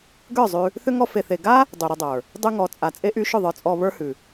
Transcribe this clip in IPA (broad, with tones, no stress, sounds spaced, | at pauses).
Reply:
ɡ ə˞˦˨ zˤ ʉ˧ | θ ʏ˦ ŋ ɔ˦ f e˧ θ e˧ ɡ a˦ | dˤ y˨ ɾ ʏ˧ dˤ ə˞˨ | dˤ y˧ ŋ ɔ˨ t͡sʼ a˨ t͡sʼ e˦ ʔ y˦ ʃ ʏ˦˨ ðˤ ə˞˧ t͡sʼ ɔ˧ β ə˞˦ h ʉ˨